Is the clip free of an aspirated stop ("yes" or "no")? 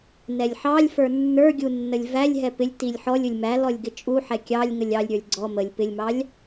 yes